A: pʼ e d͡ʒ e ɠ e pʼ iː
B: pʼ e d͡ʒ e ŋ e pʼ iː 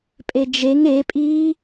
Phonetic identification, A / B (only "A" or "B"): B